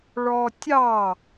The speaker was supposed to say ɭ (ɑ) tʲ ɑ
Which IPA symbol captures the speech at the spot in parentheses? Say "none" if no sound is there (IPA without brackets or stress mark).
ɔ